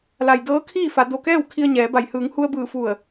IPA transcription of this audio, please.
l a˩ j d ɤː˧˥ kʰ iː˥˨ f a˩˧ d o˧˩ k ɛː˥˨ w kʰ i˧ ə̯ ɲ ɛː˩˧ b a˧˩ j h ɯː˩˧ ŋ h u˧ ə̯ b ɯː˧˩ f u˧˩ ə̯

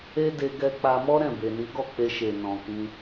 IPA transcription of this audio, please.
e˦ d e˧ ɡ ɛ˧ k͡p a˧ m ɔ˦ ɾ ɛ̃˦˨ b e˨ n i˨˦ ɡ ɔ˦˨ k͡p e˧ ʃ e˨ n ɔ̃˨ k ĩ˧

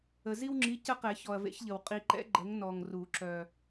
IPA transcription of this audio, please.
ə˨ z i˦ w ŋ͡ǁ i˨˥ c ə˦ q ɛ˨˩˦ ç ɔ˨ ɐ̯ v ḛ˨˥ ç ʎ ə˨ w qʼ i˨ ǃ ɛ̰˨˥ ɡ͡ǃ ə˨˥ ŋ n ɔ˨ ŋ r u˨˩˦ ǁ œ˨

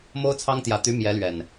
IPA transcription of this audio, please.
m o˦ ʊ̯ t͡sʰ ɑ˦ ŋ t̪ j ä˨˦ t̪ y˨˦ m j ɛ˨˦ l ɥ ɛ˨˩ n

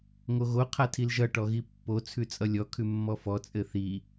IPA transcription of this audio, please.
ŋ o ɣ o qʰ a tʰ i l ʒ ʌ ʈ ɔ ɣ i pː o t͡sʰ ʉ t͡sʼ ʌ lʲ ɔ kʰ ʉ mː ɔ f ɔ t͡sʼ ɘ θ i

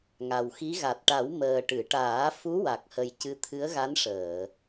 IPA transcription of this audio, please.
ŋ a˨˩ w x i˧˥ ɣ a˨˩ t̚ ʈ a˨˩˦ w m əː˨˩ ʈ ɨ˨˩˨ ʈ aː˨˩˦ f u˧˥ w a˨˩ k̚ h ə˨˩ j c ɨ˧˥ t̪ʰ ɨ˧˥ ə̯ ɣ a˧˥ n ʂ əː˨˩˨

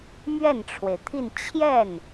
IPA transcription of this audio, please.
m ɥ ɛ˥˩ n ʈ͡ʂʰ w e˩ ɪ̯ t̪ʰ i˥˧ n t͡ɕʰ j ɛ˥˩ n

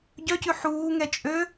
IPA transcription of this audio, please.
ɟ œ c ʉ ħ uː ŋ ɛ t͡ʃʼ ø

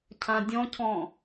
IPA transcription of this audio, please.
cʰ ã dʲ ɔ̃ cʰ ɔ̃

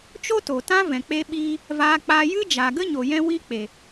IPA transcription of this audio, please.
t͡ʃ o˦ t oː˨ t ã˦ v ɛ̃˨ k͡p e˦ ɓ iː˦ | v aː˧ k͡p a˧ j ɨ˦ d͡ʒ a˨ ɡ ə˦ ɲ o˨ j ɛ̃˦ w i˦ k͡p e˨

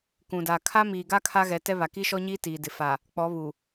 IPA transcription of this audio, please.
k ũ˨ d a˨ kʰ a˦ m iː˨ ɡ a˦ kʰ a˦ ɣ ɛ˨˦ t ɛ˦ β a˨ k i˦ ʃ ɔ˦ ɲ iː˦ t iː˨ d ɪ˨ f a˨ | k͡p ɔ˨˦ β u˨

